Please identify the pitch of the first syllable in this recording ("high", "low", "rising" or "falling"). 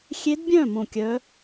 rising